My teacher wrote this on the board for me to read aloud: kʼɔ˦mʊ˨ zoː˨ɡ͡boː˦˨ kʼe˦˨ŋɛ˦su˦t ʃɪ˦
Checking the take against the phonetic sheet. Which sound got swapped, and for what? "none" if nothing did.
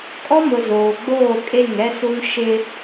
t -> n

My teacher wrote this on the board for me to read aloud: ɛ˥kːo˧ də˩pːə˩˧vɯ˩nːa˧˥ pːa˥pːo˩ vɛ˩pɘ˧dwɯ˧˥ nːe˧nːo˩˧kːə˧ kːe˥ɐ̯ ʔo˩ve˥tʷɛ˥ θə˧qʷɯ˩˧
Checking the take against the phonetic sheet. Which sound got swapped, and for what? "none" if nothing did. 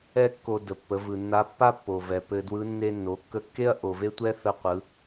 none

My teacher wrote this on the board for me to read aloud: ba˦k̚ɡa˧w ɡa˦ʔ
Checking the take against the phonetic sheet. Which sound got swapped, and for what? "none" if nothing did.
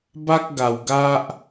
none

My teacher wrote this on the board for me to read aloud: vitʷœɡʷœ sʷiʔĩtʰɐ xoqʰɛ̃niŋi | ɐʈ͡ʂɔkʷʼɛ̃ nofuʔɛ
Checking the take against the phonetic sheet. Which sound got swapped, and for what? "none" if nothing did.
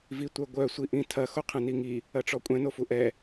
none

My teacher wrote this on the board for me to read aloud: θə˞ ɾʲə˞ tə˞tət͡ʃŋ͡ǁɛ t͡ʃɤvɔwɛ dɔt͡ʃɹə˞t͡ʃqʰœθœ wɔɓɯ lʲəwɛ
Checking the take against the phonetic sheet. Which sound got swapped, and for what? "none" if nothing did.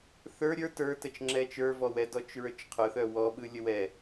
ɤ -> ə˞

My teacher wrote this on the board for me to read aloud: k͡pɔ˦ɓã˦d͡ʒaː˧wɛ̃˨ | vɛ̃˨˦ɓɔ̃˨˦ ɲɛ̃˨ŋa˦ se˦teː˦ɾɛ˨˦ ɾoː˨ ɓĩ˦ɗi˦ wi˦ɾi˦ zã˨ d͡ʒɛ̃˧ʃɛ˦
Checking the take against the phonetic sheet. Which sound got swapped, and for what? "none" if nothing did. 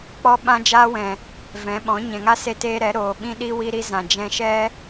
aː˧ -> aː˦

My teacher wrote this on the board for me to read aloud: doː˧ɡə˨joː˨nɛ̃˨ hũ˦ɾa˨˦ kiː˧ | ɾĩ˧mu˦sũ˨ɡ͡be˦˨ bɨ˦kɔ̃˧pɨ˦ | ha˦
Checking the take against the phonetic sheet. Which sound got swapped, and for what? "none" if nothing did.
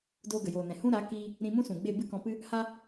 u˦ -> ũ˦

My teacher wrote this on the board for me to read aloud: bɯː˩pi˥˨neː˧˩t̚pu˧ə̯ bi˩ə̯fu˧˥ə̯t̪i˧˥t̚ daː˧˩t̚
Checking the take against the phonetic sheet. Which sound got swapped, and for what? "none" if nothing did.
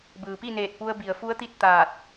d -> t̪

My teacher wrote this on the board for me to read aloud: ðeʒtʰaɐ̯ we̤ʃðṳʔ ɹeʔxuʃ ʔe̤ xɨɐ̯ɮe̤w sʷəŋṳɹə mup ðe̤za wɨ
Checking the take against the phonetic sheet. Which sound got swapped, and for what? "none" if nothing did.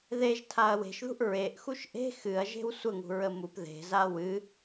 ɮ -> ʒ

